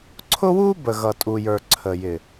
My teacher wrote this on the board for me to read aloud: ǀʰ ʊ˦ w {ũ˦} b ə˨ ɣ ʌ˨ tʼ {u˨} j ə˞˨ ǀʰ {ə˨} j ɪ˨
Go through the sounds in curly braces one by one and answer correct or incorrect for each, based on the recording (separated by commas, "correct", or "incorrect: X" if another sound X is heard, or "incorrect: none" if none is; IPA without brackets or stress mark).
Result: incorrect: u˦, correct, correct